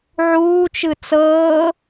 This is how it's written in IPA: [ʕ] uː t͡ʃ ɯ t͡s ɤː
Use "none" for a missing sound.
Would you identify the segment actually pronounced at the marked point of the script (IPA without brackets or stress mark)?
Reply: ʕ